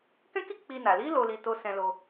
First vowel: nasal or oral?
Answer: nasal